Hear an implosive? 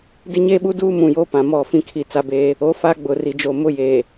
yes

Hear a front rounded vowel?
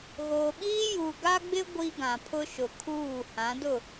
no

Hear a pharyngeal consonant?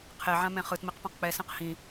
yes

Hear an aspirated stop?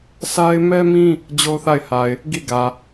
no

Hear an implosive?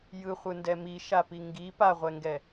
no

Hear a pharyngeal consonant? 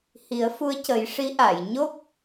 no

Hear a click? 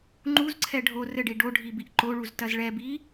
yes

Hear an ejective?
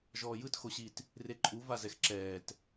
yes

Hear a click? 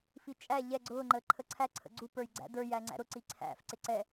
yes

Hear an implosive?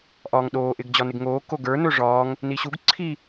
yes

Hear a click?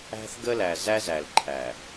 yes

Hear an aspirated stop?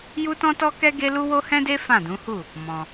no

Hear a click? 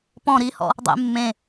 no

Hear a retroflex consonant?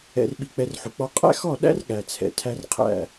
no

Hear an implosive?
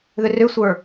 no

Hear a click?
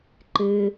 yes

